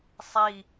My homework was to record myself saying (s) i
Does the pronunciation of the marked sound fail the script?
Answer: yes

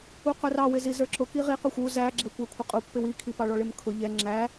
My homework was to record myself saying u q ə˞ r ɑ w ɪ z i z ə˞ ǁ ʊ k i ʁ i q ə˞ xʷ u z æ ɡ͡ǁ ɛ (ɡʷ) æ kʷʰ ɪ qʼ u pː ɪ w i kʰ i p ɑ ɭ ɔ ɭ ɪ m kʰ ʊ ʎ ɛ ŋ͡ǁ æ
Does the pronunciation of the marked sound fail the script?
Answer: yes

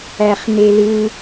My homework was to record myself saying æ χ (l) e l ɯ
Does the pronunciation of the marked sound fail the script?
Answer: yes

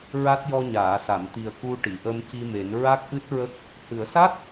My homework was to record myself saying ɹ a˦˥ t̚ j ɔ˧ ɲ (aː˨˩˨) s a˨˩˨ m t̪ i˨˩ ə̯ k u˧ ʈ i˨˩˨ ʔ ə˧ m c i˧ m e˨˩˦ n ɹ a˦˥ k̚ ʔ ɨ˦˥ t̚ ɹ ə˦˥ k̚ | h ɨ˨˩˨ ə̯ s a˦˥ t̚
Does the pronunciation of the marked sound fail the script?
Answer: no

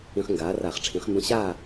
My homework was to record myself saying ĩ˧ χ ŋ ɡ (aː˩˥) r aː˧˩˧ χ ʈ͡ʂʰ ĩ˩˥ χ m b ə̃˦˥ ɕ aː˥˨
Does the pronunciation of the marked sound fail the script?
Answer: no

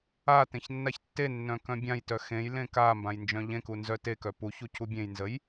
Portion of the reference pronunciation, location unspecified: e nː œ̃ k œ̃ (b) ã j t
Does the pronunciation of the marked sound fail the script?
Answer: yes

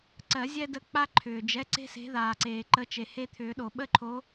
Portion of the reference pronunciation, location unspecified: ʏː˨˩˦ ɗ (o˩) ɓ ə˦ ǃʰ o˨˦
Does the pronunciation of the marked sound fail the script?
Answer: no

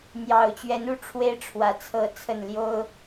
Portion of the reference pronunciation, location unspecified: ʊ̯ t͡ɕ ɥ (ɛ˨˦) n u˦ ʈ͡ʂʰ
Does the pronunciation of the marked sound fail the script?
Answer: no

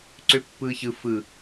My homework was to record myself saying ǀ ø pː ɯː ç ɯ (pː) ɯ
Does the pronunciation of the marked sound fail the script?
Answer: yes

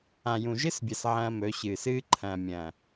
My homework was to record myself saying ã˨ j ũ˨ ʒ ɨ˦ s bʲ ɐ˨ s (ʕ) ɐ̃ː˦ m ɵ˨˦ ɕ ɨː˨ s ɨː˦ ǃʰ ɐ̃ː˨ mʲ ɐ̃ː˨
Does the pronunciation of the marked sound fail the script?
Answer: no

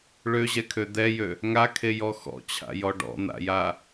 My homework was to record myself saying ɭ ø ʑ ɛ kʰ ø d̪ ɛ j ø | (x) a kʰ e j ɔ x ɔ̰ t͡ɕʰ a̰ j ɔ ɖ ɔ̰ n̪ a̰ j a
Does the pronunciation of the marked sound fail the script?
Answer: yes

